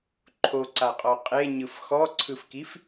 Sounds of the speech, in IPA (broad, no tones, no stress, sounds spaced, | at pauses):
ǃʰ o ǀ a qʼ ɔ qʼ e ɲ ɯ f x ɔ ǀʰ ɯ f k i f